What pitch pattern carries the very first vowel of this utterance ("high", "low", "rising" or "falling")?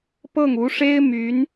falling